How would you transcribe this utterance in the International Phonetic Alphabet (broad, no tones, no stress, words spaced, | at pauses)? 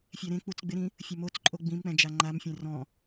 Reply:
fʲɛɾẽ k͡put͡sɡ͡bɪɾĩ | fʲomot͡sǃʼo ɡ͡bĩmk͡pɛ̃ d͡ʒaŋ͡ǃamfʲɛ̃ rɔ̃